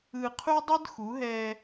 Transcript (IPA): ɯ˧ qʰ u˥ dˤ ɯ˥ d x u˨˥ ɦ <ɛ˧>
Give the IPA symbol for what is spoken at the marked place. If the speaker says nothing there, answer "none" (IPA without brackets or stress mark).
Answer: ɛ˧